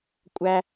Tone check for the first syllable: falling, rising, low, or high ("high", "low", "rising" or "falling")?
high